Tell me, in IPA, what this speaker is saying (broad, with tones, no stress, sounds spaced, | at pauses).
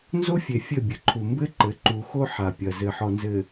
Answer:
n z o˦ fʲ e˨ fʲ ɘ˦˨ bʲ ɘ˨ ǃʰ u˨ m b ɘ˦ ǃ ɘ˨˦ ǃ u˨ x o˦ ħ a˨ pʲ ɐ˨ z ɘ˨ ħ ɔ˨ n z ɘ˨